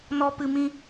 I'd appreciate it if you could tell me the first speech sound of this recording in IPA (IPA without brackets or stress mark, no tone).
n